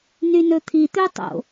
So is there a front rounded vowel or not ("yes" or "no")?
yes